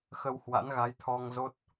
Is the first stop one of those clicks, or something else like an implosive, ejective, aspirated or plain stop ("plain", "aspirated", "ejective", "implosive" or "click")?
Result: aspirated